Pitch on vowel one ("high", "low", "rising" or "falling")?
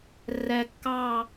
low